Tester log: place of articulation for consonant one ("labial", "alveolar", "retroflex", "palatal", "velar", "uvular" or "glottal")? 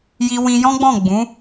palatal